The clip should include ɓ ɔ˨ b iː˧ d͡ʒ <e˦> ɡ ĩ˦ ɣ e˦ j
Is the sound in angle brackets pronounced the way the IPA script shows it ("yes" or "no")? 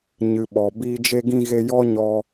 yes